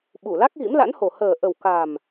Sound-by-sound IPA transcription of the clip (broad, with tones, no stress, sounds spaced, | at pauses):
ɓ u˧˩ l a˦˥ k̚ ɣ ḭ˧˥ m l a̰˧˥ n h o˨˩ h əː˨˩ ʔ ə˨˩ w k a˨˩ m